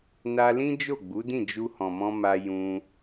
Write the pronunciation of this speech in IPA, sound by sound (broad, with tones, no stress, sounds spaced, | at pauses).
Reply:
n a˧ l ĩ˦ d͡ʒ o˦˨ ɡ͡b u˨˦ d ĩ˦˨ d͡ʒ u˧ h ɔ̃˨ m ɔ̃˧ m a˧ j ũ˧